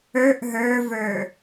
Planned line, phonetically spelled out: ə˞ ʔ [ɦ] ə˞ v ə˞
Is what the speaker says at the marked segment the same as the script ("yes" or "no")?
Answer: yes